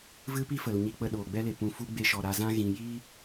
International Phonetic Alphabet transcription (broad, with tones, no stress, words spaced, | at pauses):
vɨ˦pi˦fə˨l ɲi˧k͡pə˧ ɗoː˨ɡ͡bɛ˧le˨ pũ˨fu˧ ɡ͡be˧ʃɔ˨ ɾa˨zã˧ ɣĩ˨ji˦